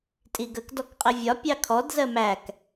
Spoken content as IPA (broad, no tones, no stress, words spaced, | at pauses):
tʼiɡək dɔkqʼɪvʲɒ pʲɑkʰɔd zɜmæk